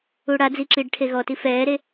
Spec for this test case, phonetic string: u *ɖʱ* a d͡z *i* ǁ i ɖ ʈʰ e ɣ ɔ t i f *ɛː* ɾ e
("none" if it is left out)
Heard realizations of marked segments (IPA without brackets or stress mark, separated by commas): ɽ, i, ɛː